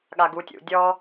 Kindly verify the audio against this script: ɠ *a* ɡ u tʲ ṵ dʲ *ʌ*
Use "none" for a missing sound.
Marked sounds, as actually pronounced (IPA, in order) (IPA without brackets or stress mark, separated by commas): a, ɔ